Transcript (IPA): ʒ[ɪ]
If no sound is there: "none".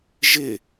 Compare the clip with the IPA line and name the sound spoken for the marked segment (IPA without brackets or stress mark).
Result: ɪ